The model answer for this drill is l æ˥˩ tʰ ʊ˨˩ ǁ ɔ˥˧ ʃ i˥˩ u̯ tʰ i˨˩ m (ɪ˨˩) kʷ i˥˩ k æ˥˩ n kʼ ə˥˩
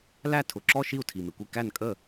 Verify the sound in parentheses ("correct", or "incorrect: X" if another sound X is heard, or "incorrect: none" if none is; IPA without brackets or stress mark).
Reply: correct